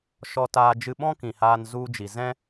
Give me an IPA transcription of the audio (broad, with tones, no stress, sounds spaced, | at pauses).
ʃ ɔ˧ t aː˧ d͡ʒ ɨ˦ ɓ ɔ̃˦ k ĩ˨ h aː˧ n z u˧ d͡ʒ i˨ z ɛ̃˦